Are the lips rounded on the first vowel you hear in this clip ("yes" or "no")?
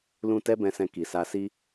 yes